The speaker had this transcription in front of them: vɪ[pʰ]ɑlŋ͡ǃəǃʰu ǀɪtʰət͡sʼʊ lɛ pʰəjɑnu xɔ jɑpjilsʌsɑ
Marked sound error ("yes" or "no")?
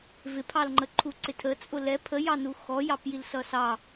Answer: no